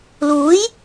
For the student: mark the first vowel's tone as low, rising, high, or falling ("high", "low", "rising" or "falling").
rising